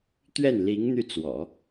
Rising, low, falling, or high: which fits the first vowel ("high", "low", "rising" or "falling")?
falling